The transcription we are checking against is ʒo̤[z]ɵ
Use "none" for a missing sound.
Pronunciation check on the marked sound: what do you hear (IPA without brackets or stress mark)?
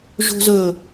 z